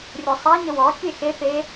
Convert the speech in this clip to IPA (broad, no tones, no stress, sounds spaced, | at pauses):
rʲ o sˤ a ɲ ə w ɔ kʲ e x e p e